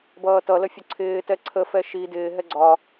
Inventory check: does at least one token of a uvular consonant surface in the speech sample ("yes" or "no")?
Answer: no